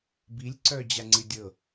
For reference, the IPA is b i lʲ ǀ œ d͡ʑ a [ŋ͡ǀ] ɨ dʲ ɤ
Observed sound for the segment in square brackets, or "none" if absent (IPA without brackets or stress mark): ŋ͡ǀ